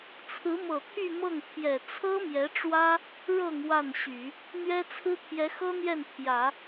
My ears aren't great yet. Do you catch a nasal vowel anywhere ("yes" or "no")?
no